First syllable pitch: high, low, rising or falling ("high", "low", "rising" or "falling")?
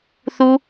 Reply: high